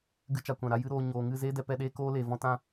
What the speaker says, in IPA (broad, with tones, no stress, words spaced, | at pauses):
ɡɨ˧t͡ʃa˨kʷã˨ɾa˧ jɨ˦ɾoː˧ ɲoː˨ŋɨ˦˨zeː˦ dɛ˧pɛ˧ɗeː˦ koː˦leː˨vɔ̃˦ tã˦